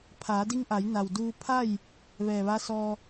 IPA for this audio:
pʰaː˩˧di˧ŋʔa˩˧j na˩wduː˧ pʰa˥˨j | ʋɛː˩ʋa˧˥sɔː˧

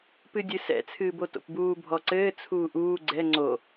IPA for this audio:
pɨdʲɨsɛ̰ t͡sʰɨːboto̰pbuː bʱɔǀɘː t͡sʰuːʔuː ɡ͡ǀɛ ŋ͡ǀo

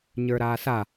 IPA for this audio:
ɲə˞ɾaːsa

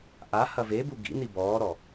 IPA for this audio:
ʔa hɐvebu ɡḭni bɔːɾɔ

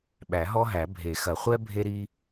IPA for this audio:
ɓæ˨˩˦ɦɔ˥ɦæ˨˩˦ bʱe˨˩˦xɐ˨˩˦ χʷɛ˥ bʱe˥ ɾi˥

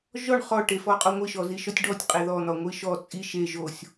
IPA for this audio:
ʒɔɳ χɔʈefɔqʼɔ ŋʷiʃɔziʃɔtʲ ɖɔtʲqʼe ðɔn̪ɒŋʷi ʃɔ t͡sʼi ʃe ʒosʲ

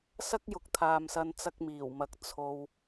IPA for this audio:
sɐ˥k̚jʊ˨k̚ t̪ʰaː˨msɐ˧n t͡sɐ˧k̚miː˨˩wmɐ˨˥k̚ t͡sʰo˨w

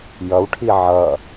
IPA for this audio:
jʌwʈʰi ʕʌ

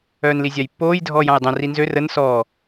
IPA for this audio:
œːnlizʲajpːoːj dʱɔːjãjdˤũ rinzø rən sɔː

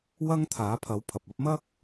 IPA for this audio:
wɐ˧ŋ t̪ʰaː˨˥pʰɐ˨˥wpʰɐ˨p̚ɐ˥p̚ mɐ˥k̚

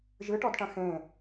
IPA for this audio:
ʒɨʈɔdʈɐ̃ xẽ

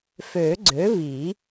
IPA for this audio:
fø˨˩˦ɡ͡ǀø˩˥ βi˨˩˦

